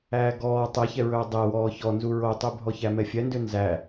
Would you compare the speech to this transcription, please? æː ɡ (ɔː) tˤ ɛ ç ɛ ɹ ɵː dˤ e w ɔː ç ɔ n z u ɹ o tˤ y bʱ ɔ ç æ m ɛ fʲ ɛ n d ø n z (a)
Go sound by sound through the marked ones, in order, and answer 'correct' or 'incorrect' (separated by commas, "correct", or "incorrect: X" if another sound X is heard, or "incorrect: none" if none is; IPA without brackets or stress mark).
correct, incorrect: æ